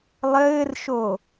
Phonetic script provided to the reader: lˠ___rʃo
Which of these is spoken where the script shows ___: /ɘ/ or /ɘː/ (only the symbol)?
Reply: ɘː